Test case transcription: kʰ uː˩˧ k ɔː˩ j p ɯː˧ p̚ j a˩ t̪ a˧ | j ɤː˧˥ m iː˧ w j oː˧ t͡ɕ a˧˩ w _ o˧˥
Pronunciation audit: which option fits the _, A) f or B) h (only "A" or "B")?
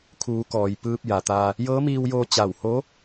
B